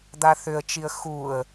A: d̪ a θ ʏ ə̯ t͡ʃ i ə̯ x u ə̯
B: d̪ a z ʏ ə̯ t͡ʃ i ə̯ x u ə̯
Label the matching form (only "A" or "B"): A